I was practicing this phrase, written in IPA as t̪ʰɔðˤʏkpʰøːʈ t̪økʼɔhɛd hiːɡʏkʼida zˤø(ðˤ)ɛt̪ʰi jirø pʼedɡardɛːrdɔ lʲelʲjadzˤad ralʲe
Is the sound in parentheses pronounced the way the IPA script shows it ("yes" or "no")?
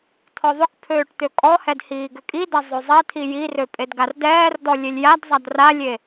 no